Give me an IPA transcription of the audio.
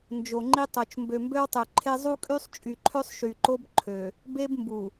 nd͡ʒo˨ŋ͡ǃi˦tˤo˨t͡ʃ mbø˨mbø˦wtˤø˨ǃʰe˦ zˤu˦kʼy˦sˤt͡ʃʼy˨ǃʰø˦sˤ ʃy˨ǃo˦b ǃʰø˨ | be˦b mbu˨

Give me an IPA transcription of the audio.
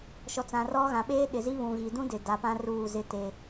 ʃɔ˨t͡sã˨rɔ˦ ɣã˨ɓeː˦ ɗɪ˨zi˦ βũ˨ɣi˨dũ˦dɪ˨ da˨pã˦ ruː˦˨zɪ˦te˦

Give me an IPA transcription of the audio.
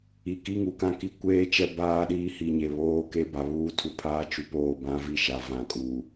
i˨ki˦ ŋu˨kã˦ki˦ kʷeː˦ t͡ʃɛ˦baː˦ɗiː˦ hi˨ɲe˨ βoː˦ke˦ba˨ βuː˦tʰu˨pʰaː˦t͡ʃu˨ poː˦˨bã˦vi˦˨ʃa˨ vã˨kʼuː˨

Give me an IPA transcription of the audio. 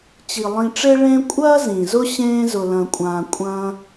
t͡ɕi˩lˠĩ˨ʈ͡ʂe˥ ɭẽ˦kʷʼɐː˥ zĩ˩zʊ˥ɕẽː˦ zʊ˨lɐ̃˨kʷʼãː˨ kʷʼɐ̃ː˦

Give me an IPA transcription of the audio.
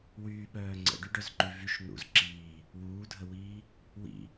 wyːɓœː ŋ͡ǀə̰ɖyɖœzǃy vyʃ n̪ṵz ǁiː | wuːdʱəwiː | wḭ

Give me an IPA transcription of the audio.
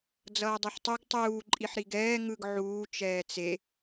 d͡zʌːdˤuħtˤuɡ tˤuː ǃʼiħɾiɡɛː ŋɯɡ ʕuː t͡ʃɛːt͡se

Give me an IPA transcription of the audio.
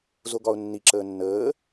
zoɡɒʊ̯nːi ǁəːnːəː

